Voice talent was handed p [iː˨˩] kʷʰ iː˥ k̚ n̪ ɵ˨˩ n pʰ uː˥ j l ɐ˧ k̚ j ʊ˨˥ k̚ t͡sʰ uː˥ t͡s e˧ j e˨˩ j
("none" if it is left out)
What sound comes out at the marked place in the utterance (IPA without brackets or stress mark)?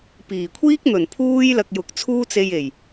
iː˨˩